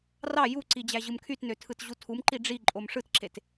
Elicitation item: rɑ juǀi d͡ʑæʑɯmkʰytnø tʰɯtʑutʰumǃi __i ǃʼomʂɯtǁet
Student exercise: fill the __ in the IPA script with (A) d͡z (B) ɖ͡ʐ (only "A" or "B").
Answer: B